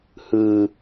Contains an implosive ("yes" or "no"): no